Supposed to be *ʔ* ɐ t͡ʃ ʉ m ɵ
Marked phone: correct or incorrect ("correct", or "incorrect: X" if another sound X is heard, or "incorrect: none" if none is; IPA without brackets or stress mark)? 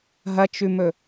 incorrect: ɦ